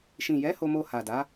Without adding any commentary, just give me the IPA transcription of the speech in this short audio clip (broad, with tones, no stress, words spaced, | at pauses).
ʃĩ˨jɛ˨˦ ho˧mo˧ha˨ da˨˦